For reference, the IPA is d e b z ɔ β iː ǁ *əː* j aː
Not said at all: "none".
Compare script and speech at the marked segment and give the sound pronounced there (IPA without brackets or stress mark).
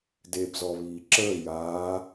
əː